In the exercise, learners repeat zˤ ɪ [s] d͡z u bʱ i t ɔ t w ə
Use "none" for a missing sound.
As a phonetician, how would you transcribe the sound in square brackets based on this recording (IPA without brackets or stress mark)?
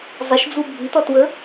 ʃ